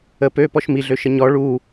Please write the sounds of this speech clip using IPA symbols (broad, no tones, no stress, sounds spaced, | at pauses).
ə p ø p ɔ ʃ m i ɮ ø ʃ ə ɲ ɔ ɭ u